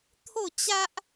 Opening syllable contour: falling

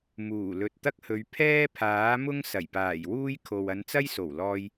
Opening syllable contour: low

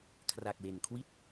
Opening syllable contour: low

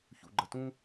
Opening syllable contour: low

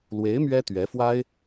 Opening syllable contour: rising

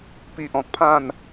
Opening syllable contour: low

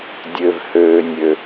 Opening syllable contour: low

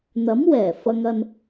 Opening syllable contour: rising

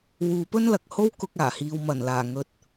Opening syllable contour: low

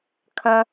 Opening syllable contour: high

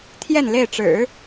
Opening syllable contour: falling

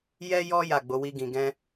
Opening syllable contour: high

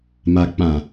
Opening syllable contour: low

